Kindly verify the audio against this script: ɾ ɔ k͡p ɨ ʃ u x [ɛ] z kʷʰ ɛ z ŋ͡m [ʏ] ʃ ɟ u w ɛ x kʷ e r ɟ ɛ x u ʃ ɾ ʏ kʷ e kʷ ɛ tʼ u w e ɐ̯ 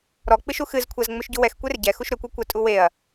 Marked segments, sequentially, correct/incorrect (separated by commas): incorrect, correct